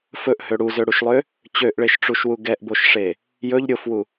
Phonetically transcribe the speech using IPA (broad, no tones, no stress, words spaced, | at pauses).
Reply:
fɵʔhø ɽuzøɽuʃlˠø | t͡ɕøʔɭeʃʈ͡ʂuʃwu ɡɛʔboʃʂe | jɵʎ ɾʲofwu